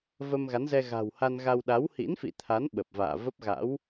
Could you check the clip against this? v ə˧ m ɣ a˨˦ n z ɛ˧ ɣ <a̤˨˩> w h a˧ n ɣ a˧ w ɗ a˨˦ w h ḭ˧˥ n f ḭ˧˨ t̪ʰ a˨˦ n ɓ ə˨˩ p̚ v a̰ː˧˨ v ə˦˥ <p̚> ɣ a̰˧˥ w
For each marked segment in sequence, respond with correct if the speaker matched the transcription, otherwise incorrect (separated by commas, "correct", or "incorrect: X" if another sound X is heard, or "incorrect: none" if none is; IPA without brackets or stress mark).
correct, correct